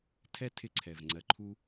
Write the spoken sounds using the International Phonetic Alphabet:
tʰ ɛ˧ tʰ ɪ˧ ǀʰ ɛ˩ v ŋ͡ǀ ɜ˧ ǃʰ u˥

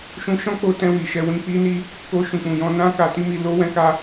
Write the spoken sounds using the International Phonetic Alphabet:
ʃ ũ˧ ʃ ɔ̃˦ k͡p o˧ t ɛ̃˧ w i˨ ʃ ɛ˧ w ĩ˧ k͡p i˦ n i˦ | k o˧ ʃ ũ˨ k͡p ũ˨ j ɔ̃˧ n ã˦ k a˧ t i˦ m i˧ l o˦ w ɛ̃˦ k a˦

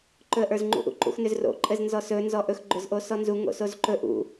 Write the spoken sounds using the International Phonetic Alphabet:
ǃ ɵ ə̯ ʔ ə˞ z ŋ͡ǃ ṵ ʔ ṵ ǃ ṵ x n ʏ z r o̰ ǃʼ ɘ z n z ɔ s ɵ n z ɔ ʔ ɵ x ɡ͡ǃ ʏ z ʔ o s ɔ n z u ŋ o̰ s o z ǃ ɵ ʔ ṵ

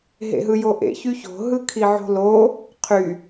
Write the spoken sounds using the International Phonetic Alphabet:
ɦ ḛ ɦ ɯ j o ʔ ḛ ç y ç o̤ ɦ ɯ kʰ i ʕ o̤ l o | qʰ y

